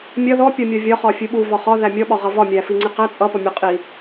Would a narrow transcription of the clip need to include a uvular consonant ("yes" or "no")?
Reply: yes